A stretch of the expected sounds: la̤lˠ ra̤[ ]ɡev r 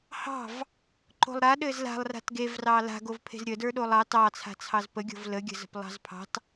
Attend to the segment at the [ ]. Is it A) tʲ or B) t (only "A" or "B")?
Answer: B